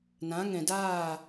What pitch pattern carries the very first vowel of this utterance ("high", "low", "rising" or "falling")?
rising